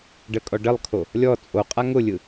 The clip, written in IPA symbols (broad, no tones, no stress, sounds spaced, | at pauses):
ɖ ə kʼ ɔ ɖ ə lˠ kʰ o | lʲ ɔ t͡sʼ o qʼ a ŋ ʊ lʲ ɯ